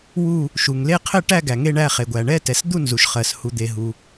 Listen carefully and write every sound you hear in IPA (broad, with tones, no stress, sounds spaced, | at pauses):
w u˦˨ | ʃ u˩ ŋ l e˦˨ qʰ ɘ˦˨ ʈ æ˦˨ ɡ æ˩ ŋ e˦˨ ɳ æ˦˨ χ e˩ ɡʷ æ˩ ɳ ɛ˦˨ t ɛ˩ s d̪ u˦˨ n z u˩ ʃ χ ɜ˩ s h u˩ d̪ e˩ ɦ u˩